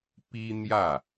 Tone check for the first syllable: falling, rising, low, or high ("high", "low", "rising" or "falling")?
high